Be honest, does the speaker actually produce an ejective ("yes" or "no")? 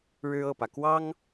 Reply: no